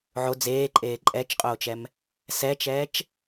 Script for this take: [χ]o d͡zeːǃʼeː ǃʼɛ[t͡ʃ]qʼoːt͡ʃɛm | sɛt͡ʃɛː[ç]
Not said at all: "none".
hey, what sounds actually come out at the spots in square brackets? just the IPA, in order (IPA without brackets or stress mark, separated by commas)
ʕ, t͡ʃ, t͡ʃ